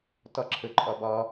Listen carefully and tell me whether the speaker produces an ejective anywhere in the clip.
yes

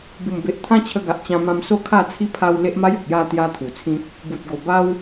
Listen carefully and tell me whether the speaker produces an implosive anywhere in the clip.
no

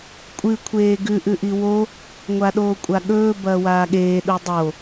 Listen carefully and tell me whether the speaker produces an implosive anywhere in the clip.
yes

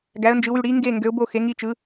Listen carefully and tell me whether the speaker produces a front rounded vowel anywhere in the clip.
yes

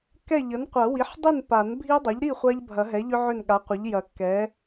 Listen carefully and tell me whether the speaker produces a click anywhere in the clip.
no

